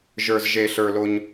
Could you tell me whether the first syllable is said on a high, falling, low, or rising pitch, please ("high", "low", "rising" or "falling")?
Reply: low